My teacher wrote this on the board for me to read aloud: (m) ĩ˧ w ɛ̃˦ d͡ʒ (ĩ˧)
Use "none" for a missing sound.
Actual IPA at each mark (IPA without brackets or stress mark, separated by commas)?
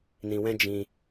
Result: n, ĩ˧